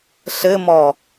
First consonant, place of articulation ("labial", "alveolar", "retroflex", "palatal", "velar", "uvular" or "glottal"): alveolar